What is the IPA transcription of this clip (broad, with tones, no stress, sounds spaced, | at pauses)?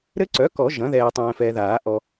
ɾ ɘ˦˥ ǀ œ˩˥ k ɔ˨˩˦ ʒ ɐ̃˩˥ ð ɛː˨ tˤ ɛ̃ː˨ f ɛː˨ ð aː˨˩˦ ʔ ɔ˨